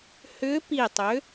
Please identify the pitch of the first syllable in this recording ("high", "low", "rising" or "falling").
rising